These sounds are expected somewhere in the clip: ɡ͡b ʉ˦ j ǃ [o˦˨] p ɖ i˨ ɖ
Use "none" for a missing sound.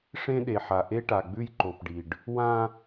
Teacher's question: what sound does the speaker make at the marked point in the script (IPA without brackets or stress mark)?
o˨